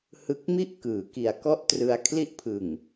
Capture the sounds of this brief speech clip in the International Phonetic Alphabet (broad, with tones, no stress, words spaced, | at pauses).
hɯ˨˩k̚mi˦˥ʔ kɯː˩˦ki˨˩a̯kɔ˥˩ʔtrɯ˧a̯ kʰli˦˥ʔpʰɯ˨˩ŋ